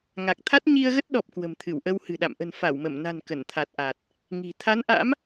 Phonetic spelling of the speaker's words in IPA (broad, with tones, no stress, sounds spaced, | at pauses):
ŋ a˨˩ k̚ t̪ʰ a˦˥ t̚ ɲ i˧ ə̯ ɣ ə˦˥ t̚ ɗ ɔ˨˩ p̚ k w ə̤˨˩ m t̪ʰ ɨ˧˩ w ʔ ə˧ w h ɨ̤˨˩ ɗ a̰˧˨ m ʔ ə̤˨˩ n f a˧˩ w m ə˧˩ m n a̤˨˩ n k ə˧˩ n t̪ʰ a˨˩ t̚ ʔ a˨˩ t̚ | ŋ i̤˨˩ t̪ʰ a˨˦ n ʔ a̰˧˥ m